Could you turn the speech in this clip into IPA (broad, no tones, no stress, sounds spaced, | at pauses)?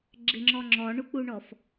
ɡ͡ǁ ɪ ŋ͡ǁ ɔ ŋ͡ǁ ɔ ɳ u k͡p u ɳ ɔ f